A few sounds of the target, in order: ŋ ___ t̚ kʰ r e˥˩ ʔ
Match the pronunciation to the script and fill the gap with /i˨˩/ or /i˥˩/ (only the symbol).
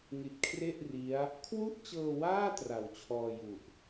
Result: i˨˩